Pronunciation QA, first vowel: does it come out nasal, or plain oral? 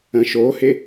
nasal